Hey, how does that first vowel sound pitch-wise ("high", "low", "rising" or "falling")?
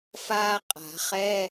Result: high